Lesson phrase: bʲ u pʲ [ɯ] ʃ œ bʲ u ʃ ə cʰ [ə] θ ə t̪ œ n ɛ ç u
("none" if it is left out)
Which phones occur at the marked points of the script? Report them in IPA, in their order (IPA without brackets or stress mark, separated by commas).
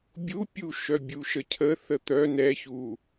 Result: u, ə